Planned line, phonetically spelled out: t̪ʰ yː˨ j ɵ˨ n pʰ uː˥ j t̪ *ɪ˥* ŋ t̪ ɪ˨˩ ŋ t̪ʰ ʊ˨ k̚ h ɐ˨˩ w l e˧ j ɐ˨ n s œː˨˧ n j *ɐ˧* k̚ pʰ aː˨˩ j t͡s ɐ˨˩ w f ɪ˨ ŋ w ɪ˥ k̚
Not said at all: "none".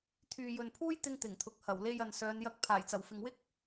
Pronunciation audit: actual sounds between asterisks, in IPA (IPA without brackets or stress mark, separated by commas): ɪ˧, ɐ˧